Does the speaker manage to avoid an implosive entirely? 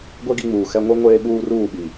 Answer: no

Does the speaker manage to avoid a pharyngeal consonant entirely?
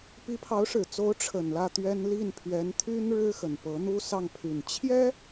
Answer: yes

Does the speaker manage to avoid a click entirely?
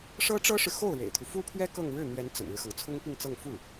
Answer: yes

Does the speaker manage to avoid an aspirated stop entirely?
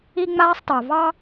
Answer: yes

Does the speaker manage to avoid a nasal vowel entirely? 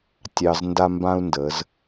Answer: no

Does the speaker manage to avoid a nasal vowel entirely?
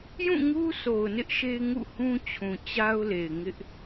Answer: no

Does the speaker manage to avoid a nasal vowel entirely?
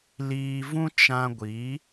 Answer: no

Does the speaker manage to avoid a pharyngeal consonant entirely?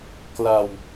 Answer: yes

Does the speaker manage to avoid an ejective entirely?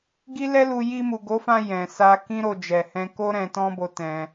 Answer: yes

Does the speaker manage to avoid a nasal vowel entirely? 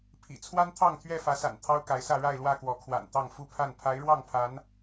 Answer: yes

